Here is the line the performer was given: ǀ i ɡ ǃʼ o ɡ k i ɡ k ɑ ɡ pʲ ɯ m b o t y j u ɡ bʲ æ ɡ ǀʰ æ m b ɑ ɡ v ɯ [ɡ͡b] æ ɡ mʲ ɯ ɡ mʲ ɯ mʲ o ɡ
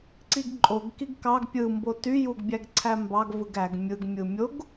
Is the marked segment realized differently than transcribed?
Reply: yes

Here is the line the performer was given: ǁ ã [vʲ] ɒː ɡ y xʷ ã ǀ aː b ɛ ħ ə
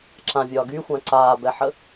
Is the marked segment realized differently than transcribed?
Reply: no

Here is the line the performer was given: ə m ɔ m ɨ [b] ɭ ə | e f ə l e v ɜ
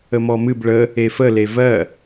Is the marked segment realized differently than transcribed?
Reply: no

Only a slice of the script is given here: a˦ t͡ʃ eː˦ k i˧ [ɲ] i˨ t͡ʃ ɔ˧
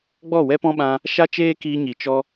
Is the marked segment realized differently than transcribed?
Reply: no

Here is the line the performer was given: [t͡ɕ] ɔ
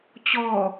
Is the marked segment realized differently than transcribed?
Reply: no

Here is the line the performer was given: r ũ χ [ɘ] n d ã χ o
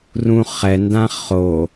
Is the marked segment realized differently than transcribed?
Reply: yes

